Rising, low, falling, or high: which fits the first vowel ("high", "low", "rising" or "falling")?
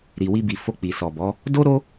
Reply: low